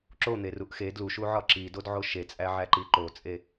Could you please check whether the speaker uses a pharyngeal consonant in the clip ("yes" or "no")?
yes